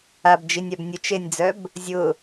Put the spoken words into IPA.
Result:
a b d͡ʒ i nʲ a b nʲ ʊ t͡ʃ e nʲ d͡z œ b | zʲ ʊ

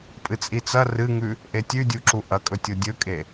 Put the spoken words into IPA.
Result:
pʼ ɨ t͡sʼ i t͡s ɐ r ɨ ŋ ʉ | ʔ e tʲ ʉ dʲ u ǁ u ʔ ɐ kʼ ɵ tʲ o dʲ ɵ kʼ e

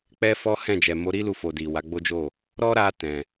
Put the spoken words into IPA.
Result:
k͡p ɛ˦ f ɔ˦ h ɛ̃˦˨ d͡ʒ ɛ˨ m o˨˦ ɾ i˦ l u˧ f o˨ d i˨ w a˨˦ ɡ͡b o˦ d͡ʒ o˦˨ | ɾ ɔ˦ ɾ a˧ t ɛ̃˨

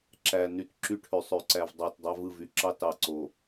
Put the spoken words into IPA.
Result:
ǁ æ˨ n y˨ t ǁ y˦ ʈʰ ø˨ sˤ ø˨ ǀ æ˨ v dˤ ɑ˦˨ t dˤ ɑ˦ v ɯ˦˨ v y˨ ǁ ɑ˦ t ɑ˨ ǀ o˨

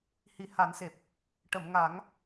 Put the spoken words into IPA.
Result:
h i˨˩ h a˨˩˦ n s e˨˩ p̚ | ʈ ə˨˩˨ m ŋ a˨˩˦ ŋ

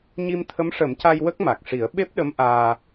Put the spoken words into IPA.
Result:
ɲ i˧ m t̪ʰ ə˧˥ m ʂ ə˨˩˦ m c a˧ j w ə˦˥ k̚ m a˨˩ k̚ ʂ i˨˩˦ ə̯ ɓ e˦˥ p̚ ɗ ə˧˥ m ʔ aː˧

